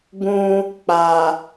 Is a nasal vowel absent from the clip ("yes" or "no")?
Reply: no